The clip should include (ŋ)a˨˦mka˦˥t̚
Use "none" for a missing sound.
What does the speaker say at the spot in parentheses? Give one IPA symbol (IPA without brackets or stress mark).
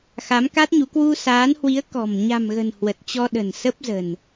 x